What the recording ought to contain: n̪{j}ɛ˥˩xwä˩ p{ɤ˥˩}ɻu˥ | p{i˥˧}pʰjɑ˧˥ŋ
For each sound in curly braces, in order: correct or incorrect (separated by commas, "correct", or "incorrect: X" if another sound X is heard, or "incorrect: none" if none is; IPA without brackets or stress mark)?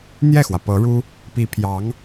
correct, incorrect: ɤ˧˥, incorrect: i˧˥